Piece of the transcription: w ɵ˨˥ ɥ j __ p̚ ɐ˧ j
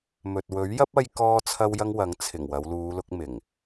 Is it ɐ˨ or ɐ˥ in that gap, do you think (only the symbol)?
ɐ˥